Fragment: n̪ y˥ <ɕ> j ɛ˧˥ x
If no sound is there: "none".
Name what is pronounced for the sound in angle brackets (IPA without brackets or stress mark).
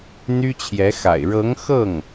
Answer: t͡ɕʰ